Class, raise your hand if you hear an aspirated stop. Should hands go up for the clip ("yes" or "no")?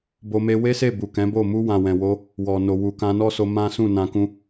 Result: no